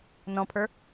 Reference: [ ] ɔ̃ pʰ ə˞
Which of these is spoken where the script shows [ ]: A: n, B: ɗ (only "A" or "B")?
A